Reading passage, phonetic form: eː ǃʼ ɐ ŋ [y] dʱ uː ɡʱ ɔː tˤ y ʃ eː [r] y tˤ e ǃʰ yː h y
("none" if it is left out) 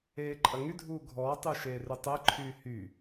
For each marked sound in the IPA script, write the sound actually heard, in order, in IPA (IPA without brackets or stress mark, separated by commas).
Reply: y, r